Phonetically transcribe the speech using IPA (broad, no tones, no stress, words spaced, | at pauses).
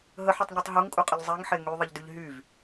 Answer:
ɦəħutˤɲutˤ ɦuŋkʼuqʼəʎ zˤeŋħe ŋyðˤəʎdyʎ ɦyv